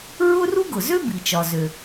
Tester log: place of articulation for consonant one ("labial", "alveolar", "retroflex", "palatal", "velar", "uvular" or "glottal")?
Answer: alveolar